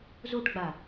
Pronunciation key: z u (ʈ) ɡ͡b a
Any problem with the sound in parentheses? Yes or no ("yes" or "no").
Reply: no